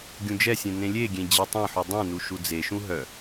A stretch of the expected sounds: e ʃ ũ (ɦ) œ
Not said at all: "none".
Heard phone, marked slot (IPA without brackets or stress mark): ɦ